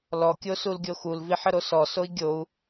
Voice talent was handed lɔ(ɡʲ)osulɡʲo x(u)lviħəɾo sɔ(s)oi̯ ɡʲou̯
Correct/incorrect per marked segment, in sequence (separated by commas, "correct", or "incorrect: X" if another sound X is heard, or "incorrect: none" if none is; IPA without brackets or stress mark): incorrect: kʲ, correct, correct